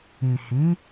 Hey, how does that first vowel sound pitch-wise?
low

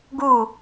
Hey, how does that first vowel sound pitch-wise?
falling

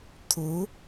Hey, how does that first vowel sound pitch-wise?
rising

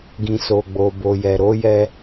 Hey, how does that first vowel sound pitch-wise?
low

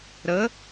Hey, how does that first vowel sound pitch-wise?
rising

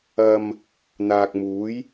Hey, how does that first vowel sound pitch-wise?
low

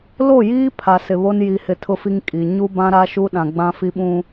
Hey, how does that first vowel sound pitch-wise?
falling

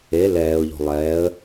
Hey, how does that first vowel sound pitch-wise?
rising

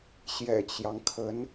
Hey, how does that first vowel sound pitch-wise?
low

